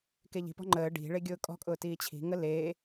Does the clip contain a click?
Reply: yes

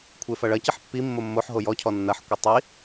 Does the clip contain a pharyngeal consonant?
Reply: yes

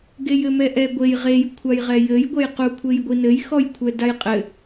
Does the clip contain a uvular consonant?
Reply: yes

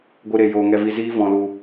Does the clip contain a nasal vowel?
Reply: yes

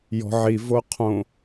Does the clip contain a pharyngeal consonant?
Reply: yes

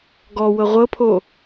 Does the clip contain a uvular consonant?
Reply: yes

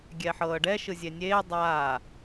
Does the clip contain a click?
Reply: no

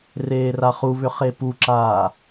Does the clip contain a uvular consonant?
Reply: yes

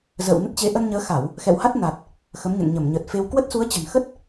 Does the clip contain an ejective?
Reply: no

